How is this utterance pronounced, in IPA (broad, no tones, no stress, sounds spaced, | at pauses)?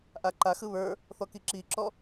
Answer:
ʔ a ǃ a x ɯ β ə˞ | θ ɔ k i ǁ i ǁ ɔ